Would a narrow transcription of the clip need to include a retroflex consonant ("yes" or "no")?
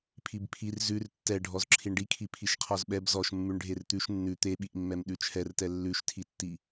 yes